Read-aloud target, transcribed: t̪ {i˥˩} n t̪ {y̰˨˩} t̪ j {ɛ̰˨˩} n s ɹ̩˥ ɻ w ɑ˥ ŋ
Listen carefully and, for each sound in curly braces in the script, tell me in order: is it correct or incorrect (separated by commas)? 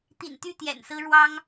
incorrect, incorrect, correct